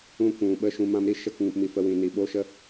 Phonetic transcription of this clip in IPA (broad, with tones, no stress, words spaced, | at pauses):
ũ˧kʷũ˨ɓə˧ ʃũ˧mã˦m ɾi˦ʃə˦˨kŋũ˨pmi˨ fə˧wĩ˨ ni˨ɓo˦ʃə˦